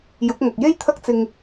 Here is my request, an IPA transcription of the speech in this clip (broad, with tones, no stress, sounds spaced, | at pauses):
j ʊ˨˥ k̚ ŋ ɐ˨ k̚ j e˥ j t̪ʰ ɐ˥ k̚ t͡s ɪ˧ ŋ